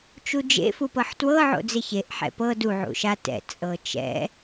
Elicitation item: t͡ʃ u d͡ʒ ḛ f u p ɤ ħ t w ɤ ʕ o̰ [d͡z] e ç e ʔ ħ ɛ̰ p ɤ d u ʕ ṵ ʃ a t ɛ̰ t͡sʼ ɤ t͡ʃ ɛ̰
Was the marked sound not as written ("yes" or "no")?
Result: no